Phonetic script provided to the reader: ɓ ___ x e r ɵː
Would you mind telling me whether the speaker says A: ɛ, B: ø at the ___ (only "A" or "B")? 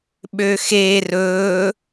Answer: B